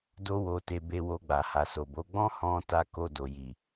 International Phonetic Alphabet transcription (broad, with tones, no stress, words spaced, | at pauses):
do˧wo˨ te˧be˧wo˧ ɡ͡ba˨ha˨so˨bo˨˦ ɡ͡bɔ̃˦hɔ̃˧ ta˧ko˧do˨ji˨